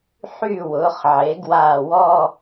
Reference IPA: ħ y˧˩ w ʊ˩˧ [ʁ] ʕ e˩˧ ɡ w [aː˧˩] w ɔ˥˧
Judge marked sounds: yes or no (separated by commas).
no, yes